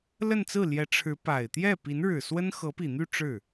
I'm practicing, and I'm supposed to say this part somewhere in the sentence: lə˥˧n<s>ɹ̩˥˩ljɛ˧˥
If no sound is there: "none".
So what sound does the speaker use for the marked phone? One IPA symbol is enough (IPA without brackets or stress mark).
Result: t͡s